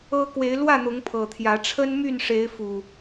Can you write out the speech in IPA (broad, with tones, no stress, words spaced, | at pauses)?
ɤ˦ kwe˨˦ɪ̯lwä˥˨n̪ʊ˨˦ŋ pʰɤ˨˩t̪ʰjä˨˦ ʈ͡ʂʰə˦nmy˥˨nʂe˨˦ɪ̯fu˨˩